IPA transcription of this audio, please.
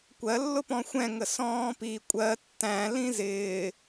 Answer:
kʷ ɜ lː ʊ p ɔ̃ xʷ ɛ̃ ŋ ə s ɔ̃ː p i kʷʼ ɜ tː æ̃ l ĩ z ɪː

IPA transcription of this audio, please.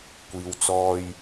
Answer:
kʷ iː˨ w t͡s ɔː˧ j

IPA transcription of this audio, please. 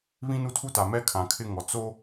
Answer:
β ĩ˦ n u˦ tʰ u˦ t a˨ m ɛ˦ kʰ ã˨ kʰ ɪ˦ ŋ ɔ˨ t͡s o˦

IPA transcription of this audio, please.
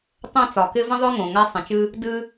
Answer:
tˤ ɛ̃˦ t͡s ɒ˩ k ɪ˦ v ə̃˥ ðˤ ʊ˥ ŋ õ˩ ŋ a˥ sˤ ə̃˩ t͡ʃ ɨ˥ | d ɨ˥

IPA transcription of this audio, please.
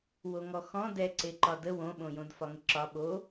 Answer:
w o ŋ ɔ x ɔ̃ d ɛ ǀ e ǃ ɒ d ə w õ ɓ õ j õ d f ɒ ŋ ə ǁ ɒ ɓ o

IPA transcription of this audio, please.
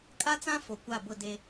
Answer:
kʼ a˦ t͡s ã˦ f o˨ kʷ a˦˨ b ʊ˦˨ d e˦

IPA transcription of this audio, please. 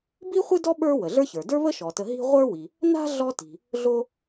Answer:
b i˥ χʷ ɨ˥ d ɔ˥ ɓ ə˞˥ w ə˩ ɮ ə˞˥ ç ə˞˩ d ə˞˥ β ə˥ ʃ ɔ˩ t ə˨ ɦ i̤˦ ʁʷ ə˞˥ w i˩ | n a̤˥ ɮ ɔ˦ t i̤˩ | ɮ o˦

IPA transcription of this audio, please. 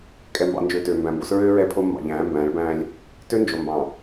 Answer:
kʼ ɛ˨ m b ɑ̰˨ n d͡ʒ øː˨ t øː˨ m b æ̃˨ m b o˦ s ɹ øː˦ ɹ ɛ˦ pʰ o˦ mː ɑ̰˨ ʎ æ̃ː˨˦ m b æ̃ː˨˦ ɭ b æ̃ː˦ lʲ | t ø˦ n d͡ʒ o˨ m b ɑ̃˨

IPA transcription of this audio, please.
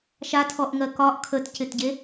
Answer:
ʃ a tʰ ɔ ʔ ŋ ɜ k ɒ ʔ kʰ ə t c ɪ t ɟ e

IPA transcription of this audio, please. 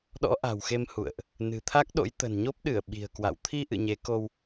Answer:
ɗ ɔ̰˧˥ ʔ a̤˨˩ w x e˧ m h ṵ˧˨ ə̯ ʔ | n ɨ̤˨˩ t̪ʰ a˦˥ k̚ ɗ o̰˧˥ j t̪ ə̤˨˩ n ɲ o˦˥ p̚ ɗ ɨ˧˩ ə̯ ɓ i̤˨˩ ə̯ k w a̰˧˨ w t̪ʰ i˧ ʔ ɨ̰˧˨ ɲ e˨˦ k o˧ w

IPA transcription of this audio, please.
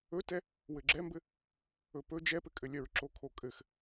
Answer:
ɵ t ɛ | w ɘ ɡ͡ǁ ɛ m b ɘ | ɵ p ɵ d͡ʒ ɛ p ɘ kʼ ɘ lʲ œ ɹ ǁ o kʰ o kʼ ɘ x

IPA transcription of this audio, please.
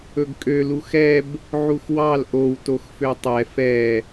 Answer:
ɵ ɡ kʼ ø l u x ɛ b | ʕ u x w ɑ l ʔ o w t o x f ø tˤ ɛ f ɛ

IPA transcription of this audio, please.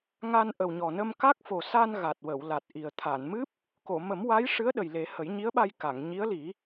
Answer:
ŋ a˧ n ʔ ə˨˩ w ɲ ɔ˨˩ n ə˧ m k a˦˥ k̚ f o˨˩ s a˧ n ɣ a˨˩ t̚ w ə˨˩˨ w l a˨˩ t̚ ʔ i˨˩ ə̯ t̪ʰ a˨˩˨ n m ɨ˦˥ p̚ | k o˨˩˨ m ə˨˩˦ m w a˧˥ j ʂ ɨ˧˥ ə̯ ɗ ə˨˩ j l e˨˩˦ h ə˨˩˦ j ɲ i˧˥ ə̯ ɓ a˧ j k a˨˩˨ ŋ ɲ i˧˥ ə̯ l i˨˩˦

